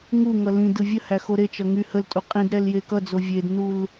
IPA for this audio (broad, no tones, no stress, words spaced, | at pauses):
ŋuŋʌ lĩdɯ vʲəhæ xoɾet͡ʃʌ ŋy həltʼu qʼĩd ɾɛljekʌd͡zo vʲednul